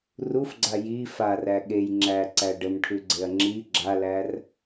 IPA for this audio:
r u f ɡ͡ǀ a j i f a r æ ɠ e j ŋ͡ǁ æ ǀ æ ɖ ə m ʈʰ ʉ ɡ͡ǀ e ɐ̯ ŋ͡ǁ i ɡ͡ǁ a l æ r

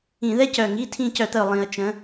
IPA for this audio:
ĩ˧˩˧ ð ɛ˥ c œ˨˩ ŋ i˧˥˧ tʰ ĩ˦˨ c œ˧˩˧ t̪ ə˨˩ ʊ̯ lˠ ĩ˧˩˧ ə̯ t͡ʃ ə̃˩˥

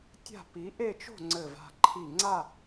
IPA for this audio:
tʲ a̤˥˧ p i˧˥ ʔ e˥˧ t͡ʃ o̤˥˧ ŋ͡ǀ ɘ˥˧ v a̤˥˧ ǃʰ i˥˧ ŋ͡ǀ a˥˧

